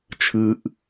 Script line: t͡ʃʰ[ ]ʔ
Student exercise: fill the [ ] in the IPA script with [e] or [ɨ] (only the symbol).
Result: ɨ